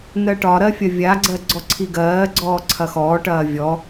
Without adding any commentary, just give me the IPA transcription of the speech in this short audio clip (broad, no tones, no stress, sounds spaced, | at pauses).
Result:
n ɜ ʈ ɒ ɾ ɜ fʲ ɐ vʲ a ɡ͡ǀ ɜ ɡ͡ǀ ɔ ǀʰ i ɡ ɜː ɡ͡ǀ ɔː ǀʰ ɐ x ɔː ʈ ɐː vʲ ɔ